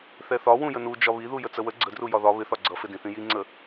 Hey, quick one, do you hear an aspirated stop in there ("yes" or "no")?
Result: no